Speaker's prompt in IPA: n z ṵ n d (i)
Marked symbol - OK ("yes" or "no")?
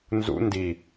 yes